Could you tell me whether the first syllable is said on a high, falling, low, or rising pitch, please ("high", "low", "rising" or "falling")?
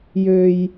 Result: low